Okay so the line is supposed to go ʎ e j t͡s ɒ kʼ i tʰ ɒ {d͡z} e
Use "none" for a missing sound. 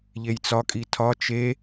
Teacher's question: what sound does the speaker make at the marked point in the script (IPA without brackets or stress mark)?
t͡ʃ